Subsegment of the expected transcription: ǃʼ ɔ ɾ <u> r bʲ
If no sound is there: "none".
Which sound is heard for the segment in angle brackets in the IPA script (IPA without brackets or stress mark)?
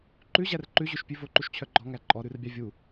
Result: ʉ